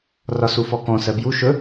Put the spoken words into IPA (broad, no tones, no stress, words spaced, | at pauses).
rɒsufɔkɔ̃ sɜbju ʃɵ